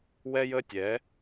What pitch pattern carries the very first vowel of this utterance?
high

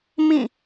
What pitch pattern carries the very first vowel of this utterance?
falling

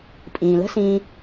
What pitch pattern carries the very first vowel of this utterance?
low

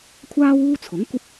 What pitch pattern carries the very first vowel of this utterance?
high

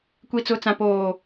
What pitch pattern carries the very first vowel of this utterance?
low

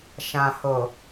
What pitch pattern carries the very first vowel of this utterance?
low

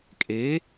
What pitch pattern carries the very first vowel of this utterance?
rising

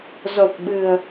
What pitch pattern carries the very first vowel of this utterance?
low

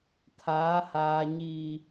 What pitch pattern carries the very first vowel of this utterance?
rising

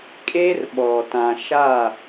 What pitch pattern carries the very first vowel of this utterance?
high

